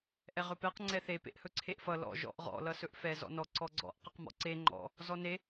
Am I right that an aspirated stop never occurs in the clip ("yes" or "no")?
no